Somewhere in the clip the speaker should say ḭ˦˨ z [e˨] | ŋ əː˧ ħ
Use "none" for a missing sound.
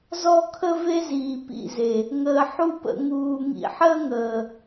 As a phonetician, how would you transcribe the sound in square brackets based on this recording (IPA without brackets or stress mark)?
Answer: e˨